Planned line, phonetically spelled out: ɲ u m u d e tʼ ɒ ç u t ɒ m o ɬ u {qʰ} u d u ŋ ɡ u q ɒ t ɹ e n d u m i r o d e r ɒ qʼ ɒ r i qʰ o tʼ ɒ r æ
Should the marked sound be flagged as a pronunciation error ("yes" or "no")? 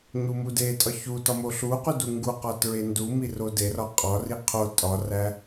yes